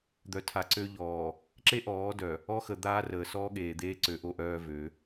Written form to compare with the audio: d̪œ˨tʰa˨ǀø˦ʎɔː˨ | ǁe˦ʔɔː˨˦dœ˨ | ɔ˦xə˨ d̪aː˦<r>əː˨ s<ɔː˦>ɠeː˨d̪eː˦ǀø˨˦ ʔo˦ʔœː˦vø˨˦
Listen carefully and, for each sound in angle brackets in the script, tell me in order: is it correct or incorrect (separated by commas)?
correct, correct